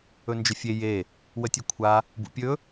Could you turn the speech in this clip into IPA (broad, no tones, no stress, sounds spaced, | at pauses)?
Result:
ɵ n d͡ʒ ə fʲ e j e | w ə tʲ ɵ kʷʰ a | b ṵ pʲ ɵ